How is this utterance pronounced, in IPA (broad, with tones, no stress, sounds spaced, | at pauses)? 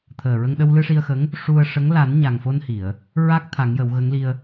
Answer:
t̪ʰ əː˨˩ ɹ ə˧ ŋ ɗ ə˧ w l ɨ˧ ʂ i˧ ə̯ x ə˧˥ ŋ | ʂ u˧ ə̯ ʂ ə˧˥ ŋ l a˨˩˦ n ɲ a˨˩ ŋ f o˧ n h i˨˩˨ ə̯ | ɹ a˦˥ k̚ t̪ʰ a˨˩˦ ŋ j ə˨˩˦ w ɣ ə˧˥ ŋ l i˧ ə̯